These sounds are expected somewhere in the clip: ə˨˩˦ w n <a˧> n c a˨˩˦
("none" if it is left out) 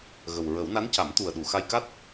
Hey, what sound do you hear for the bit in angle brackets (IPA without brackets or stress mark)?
a˧˥